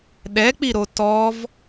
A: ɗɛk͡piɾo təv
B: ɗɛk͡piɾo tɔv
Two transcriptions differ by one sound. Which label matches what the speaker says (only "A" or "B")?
B